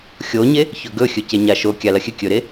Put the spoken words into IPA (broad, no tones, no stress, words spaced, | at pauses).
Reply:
xʲoɲe | çɵɡɵ xʲɵceɲaʃo kʲalɐxʲɨ kʲɵɾe